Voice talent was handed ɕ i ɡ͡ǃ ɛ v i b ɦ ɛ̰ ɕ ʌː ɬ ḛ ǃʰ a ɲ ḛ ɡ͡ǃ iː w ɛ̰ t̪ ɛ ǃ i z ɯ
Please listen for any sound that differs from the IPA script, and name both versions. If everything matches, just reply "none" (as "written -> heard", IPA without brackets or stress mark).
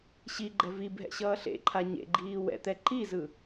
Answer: none